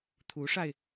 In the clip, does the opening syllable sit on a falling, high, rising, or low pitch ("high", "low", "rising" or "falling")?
rising